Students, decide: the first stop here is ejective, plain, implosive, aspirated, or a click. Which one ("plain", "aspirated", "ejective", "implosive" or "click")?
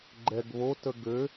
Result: click